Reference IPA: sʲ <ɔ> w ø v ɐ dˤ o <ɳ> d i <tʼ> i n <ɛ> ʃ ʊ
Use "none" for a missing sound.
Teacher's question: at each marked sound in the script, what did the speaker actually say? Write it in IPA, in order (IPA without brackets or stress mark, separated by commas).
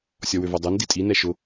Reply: ɔ, n, tʼ, ɛ